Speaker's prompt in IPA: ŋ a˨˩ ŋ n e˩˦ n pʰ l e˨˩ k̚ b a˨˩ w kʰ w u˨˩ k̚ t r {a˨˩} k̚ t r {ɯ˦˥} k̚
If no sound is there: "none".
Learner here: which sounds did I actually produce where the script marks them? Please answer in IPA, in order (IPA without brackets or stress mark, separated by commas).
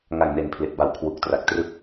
a˨˩, ɯ˥˩